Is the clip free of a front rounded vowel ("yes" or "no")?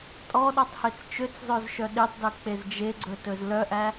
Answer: no